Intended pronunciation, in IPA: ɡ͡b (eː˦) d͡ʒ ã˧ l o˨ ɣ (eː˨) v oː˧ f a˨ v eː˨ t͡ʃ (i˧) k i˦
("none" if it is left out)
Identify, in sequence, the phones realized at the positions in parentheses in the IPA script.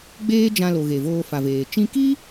eː˦, e˨, ĩ˧

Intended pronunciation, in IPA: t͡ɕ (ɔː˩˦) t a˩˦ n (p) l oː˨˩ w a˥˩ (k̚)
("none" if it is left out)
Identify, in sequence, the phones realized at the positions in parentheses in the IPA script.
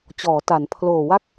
ɔː˩˦, pʰ, k̚

